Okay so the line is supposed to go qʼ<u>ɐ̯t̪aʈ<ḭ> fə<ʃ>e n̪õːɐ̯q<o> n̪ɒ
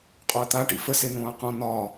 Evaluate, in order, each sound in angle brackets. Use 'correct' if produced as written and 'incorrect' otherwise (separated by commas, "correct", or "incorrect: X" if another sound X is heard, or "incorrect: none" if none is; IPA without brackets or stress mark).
incorrect: o, correct, incorrect: s, incorrect: õ